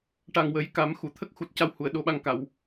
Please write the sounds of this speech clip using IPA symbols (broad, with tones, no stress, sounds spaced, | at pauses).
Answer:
ʈ a˨˩ ŋ w ə˨˩˦ j k a˨˩˦ m x u˨˩˨ t̪ʰ ə˦˥ k̚ x u˨˩ t̚ c a˧ w h u˨˩˨ ə̯ ɗ o˧ ɓ a˧ ŋ k a˨˩˨ w